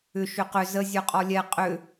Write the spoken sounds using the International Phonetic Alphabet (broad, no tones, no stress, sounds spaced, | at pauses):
ʏ ʃ ʏ q ʏ z ə zʲ œ qʼ ɔ lʲ ɛ qʼ ʏ